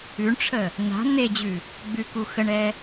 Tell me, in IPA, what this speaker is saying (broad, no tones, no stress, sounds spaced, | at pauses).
ʉ ɳ ʈ͡ʂʰ ə | n̪ a̤ n̪ e d͡ʑ ʉ | ɡ͡b ʉ k u x ə ɳ ɛ